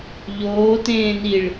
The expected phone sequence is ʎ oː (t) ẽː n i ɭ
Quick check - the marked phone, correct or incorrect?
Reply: correct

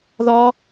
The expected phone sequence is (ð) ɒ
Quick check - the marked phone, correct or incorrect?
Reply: correct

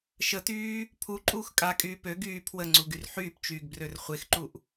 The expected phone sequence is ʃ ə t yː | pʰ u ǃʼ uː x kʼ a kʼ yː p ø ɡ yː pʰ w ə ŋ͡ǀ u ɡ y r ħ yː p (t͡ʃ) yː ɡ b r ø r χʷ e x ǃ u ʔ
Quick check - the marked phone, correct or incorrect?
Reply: correct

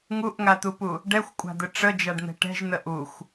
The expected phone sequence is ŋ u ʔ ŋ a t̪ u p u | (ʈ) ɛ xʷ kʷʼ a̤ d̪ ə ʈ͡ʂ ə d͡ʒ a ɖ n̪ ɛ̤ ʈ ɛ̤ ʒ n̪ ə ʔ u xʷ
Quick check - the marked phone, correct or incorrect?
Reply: incorrect: ɖ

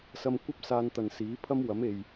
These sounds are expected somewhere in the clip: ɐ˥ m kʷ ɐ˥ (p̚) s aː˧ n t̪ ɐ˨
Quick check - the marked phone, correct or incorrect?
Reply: correct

